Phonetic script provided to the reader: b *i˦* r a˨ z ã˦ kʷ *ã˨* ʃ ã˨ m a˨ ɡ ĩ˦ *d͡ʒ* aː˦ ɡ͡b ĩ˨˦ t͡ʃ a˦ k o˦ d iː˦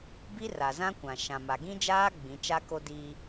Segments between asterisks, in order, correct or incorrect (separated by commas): correct, correct, correct